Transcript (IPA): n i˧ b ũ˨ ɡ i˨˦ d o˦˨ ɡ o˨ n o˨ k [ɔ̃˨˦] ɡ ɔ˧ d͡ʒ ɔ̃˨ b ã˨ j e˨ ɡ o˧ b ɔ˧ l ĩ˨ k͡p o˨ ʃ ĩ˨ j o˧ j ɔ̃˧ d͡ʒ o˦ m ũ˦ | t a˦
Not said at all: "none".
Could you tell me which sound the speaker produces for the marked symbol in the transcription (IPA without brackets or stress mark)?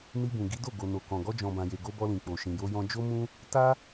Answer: ɔ̃˨